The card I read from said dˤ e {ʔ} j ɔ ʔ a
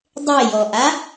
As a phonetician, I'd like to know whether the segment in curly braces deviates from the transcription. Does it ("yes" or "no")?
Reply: yes